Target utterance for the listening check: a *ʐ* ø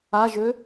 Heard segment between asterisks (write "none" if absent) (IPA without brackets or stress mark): ʒ